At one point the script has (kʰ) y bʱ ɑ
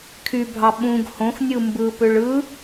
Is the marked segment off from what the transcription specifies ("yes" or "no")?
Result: no